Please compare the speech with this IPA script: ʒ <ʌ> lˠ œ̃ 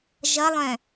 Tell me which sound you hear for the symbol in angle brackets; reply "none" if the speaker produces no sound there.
ʌ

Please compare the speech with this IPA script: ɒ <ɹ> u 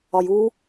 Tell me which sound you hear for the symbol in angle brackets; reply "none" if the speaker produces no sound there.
j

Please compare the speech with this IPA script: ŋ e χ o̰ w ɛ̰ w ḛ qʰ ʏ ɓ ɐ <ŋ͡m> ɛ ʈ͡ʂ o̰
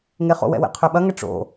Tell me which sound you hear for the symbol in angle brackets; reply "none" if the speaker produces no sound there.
ŋ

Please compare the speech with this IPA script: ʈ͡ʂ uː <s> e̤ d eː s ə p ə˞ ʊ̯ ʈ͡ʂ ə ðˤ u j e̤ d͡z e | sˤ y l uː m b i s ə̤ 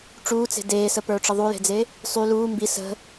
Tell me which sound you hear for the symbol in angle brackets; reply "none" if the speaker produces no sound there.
t͡s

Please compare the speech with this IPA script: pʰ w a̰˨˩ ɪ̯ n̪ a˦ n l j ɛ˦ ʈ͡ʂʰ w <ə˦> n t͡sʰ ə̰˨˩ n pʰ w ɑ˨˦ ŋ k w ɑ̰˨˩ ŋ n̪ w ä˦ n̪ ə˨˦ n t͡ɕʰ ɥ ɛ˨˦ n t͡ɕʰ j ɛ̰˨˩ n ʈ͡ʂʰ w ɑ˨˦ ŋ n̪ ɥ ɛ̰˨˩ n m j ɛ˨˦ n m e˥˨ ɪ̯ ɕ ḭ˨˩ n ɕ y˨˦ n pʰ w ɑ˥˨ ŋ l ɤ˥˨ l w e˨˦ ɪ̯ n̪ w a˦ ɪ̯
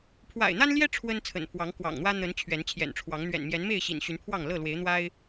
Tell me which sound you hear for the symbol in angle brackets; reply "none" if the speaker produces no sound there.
ə˦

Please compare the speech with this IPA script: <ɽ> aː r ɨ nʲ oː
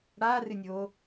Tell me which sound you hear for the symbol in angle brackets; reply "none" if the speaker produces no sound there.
ɽ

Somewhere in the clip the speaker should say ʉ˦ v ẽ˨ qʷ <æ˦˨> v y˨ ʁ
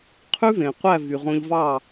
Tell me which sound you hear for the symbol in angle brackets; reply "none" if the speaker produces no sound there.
æ˦˨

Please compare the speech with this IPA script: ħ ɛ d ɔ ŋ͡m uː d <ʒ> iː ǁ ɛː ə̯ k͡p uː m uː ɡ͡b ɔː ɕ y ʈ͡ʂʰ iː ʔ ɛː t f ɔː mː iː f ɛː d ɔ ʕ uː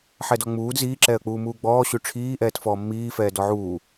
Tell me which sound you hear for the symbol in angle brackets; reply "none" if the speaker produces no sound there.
z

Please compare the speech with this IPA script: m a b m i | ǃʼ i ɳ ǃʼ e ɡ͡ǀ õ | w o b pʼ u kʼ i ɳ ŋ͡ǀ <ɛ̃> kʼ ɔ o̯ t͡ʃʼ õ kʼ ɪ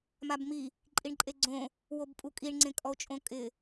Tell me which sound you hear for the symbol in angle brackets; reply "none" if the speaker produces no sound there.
ẽ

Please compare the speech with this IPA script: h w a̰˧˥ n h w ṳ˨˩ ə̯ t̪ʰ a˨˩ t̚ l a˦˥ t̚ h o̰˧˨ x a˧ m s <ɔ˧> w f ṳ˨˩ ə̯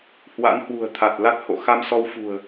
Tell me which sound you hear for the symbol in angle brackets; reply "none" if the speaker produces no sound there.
ɔ˧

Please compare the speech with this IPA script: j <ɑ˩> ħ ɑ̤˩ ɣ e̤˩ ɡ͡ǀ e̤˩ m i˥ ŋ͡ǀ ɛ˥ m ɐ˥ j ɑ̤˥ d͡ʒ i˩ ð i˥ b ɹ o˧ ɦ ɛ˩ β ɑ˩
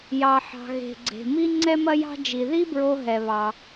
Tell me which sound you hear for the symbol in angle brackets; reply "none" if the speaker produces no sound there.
ɑ˩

